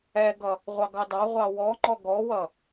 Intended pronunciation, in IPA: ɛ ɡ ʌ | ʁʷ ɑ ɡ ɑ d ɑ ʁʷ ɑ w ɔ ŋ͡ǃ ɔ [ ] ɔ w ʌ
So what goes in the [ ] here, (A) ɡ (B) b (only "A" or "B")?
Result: A